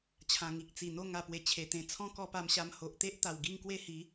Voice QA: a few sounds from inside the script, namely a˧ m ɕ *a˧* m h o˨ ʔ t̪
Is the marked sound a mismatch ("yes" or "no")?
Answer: no